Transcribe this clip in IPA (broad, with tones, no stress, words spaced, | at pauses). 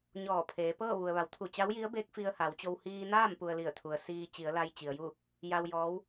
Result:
ɲɔː˧˩pʰeː˩˧pɤː˥˨ ʋu˩ə̯ʋa˩˧wt̪ʰu˧˩t͡ɕa˧˥w ji˧˥ə̯beː˧˥k̚ fi˧ə̯ha˩˧wt͡ɕo˧w hiː˧naː˥˨m pu˧ə̯li˧˩ə̯t̪ʰu˩ə̯ siː˧ t͡ɕi˩˧ə̯la˧jt͡ɕi˩ə̯ ju˥˨ | ja˧w jɔː˧˥w